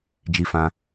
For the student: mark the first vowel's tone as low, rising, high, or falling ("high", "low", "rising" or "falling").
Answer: high